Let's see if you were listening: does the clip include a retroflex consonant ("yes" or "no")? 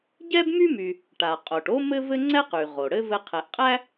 yes